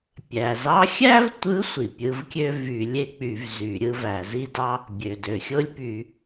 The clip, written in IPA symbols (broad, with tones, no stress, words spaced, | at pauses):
pʲæ˩zɑ˧˥xʲæ˥vtʷɯ˧˥ sʷi˩pʲɯ˧˥vkʲø˥ vy˧˩˧ lʲe˥k͡py˧˩˧v zy˧˩˧ɾʲɯ˥væ˧˩˧ zi˥dɑ˥ | bʲø˩dø˩xʲo˥lʲpy˧˩˧